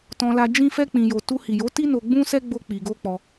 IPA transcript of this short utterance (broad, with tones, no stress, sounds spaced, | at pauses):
t ɔ̃˧ l a˧ d͡ʒ ĩ˦ f ɛ˦ k͡p ĩ˧ j o˧ t u˧ h i˨ j o˨˦ t i˦ n o˧ ɡ͡b ũ˦ s ɛ˦ ɡ͡b o˦ k͡p i˧ ɡ o˦ k͡p ɔ˧